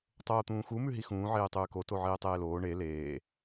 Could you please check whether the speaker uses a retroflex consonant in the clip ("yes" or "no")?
yes